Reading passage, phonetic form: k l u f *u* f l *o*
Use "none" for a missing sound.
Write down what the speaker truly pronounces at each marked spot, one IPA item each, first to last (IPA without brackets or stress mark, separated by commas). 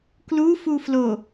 u, o